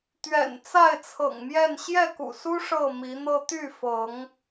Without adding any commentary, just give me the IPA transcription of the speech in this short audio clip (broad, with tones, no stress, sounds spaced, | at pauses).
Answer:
t̪ ɥ ɛ̰˨˩ n t͡s a˥˨ ɪ̯ t͡sʰ ɤ̰˨˩ ŋ m j ɛ˥˨ n ɕ j ɛ˥˨ k ṵ˨˩ s u˦ ʂ ɤ˥˨ m i˨˦ n̪ ɤ˦ t̪ y˥˨ f ɤ˨˦ ŋ